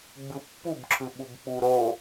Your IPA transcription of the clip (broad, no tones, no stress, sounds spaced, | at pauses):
ɡ͡b ɯ pː u b ǁʰ ɯ ɓ u b k͡p u ɾ o